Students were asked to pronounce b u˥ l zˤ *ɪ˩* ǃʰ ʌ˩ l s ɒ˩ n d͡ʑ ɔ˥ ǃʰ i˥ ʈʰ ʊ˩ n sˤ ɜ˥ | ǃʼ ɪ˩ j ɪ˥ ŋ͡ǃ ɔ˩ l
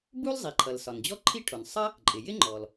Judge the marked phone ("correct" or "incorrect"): incorrect